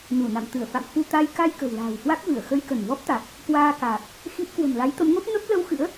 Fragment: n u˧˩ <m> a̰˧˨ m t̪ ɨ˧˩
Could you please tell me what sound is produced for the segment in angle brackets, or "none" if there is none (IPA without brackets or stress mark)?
n